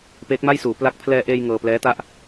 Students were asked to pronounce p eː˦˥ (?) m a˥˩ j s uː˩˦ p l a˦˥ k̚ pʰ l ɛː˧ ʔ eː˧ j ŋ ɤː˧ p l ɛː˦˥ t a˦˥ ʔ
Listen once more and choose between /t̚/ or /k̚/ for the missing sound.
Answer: k̚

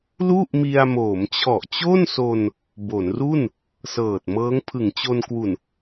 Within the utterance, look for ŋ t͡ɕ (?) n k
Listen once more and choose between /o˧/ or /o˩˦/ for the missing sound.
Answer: o˧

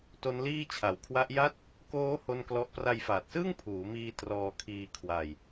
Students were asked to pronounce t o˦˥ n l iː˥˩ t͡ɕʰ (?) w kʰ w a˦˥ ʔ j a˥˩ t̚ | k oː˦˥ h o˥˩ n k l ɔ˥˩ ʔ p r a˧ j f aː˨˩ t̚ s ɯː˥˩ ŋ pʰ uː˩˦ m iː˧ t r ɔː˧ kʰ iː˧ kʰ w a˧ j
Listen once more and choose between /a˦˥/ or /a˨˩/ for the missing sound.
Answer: a˨˩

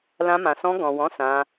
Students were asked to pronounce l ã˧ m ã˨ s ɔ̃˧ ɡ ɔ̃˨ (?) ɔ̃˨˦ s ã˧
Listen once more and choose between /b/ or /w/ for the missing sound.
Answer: w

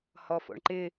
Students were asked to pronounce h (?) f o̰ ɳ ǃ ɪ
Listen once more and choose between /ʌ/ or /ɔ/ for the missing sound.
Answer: ɔ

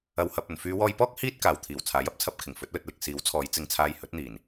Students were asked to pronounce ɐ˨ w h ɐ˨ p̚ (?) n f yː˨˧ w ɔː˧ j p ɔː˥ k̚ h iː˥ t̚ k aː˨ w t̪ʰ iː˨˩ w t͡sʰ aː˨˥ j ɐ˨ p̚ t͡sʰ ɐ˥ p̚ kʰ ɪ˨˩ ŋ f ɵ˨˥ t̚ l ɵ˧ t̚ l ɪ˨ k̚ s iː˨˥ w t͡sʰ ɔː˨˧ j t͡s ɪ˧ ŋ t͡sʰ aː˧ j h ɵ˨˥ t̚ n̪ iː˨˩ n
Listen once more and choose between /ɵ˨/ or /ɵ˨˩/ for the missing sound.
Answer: ɵ˨˩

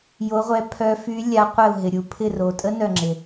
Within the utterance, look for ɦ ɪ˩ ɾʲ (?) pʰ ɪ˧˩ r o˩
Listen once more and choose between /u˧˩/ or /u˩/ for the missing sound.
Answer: u˩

